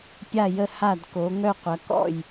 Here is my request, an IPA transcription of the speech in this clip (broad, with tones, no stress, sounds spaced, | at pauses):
pʲ a˥˨ j ə˥˨ h a˥˨ d k o˨˦ ŋ œ˥˨ qʷ ɐ˨˦ k ɔ̰˥˨ j